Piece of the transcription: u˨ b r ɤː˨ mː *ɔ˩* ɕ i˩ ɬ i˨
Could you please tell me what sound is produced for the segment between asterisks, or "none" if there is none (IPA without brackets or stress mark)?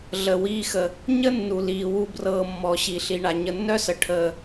ɔ˩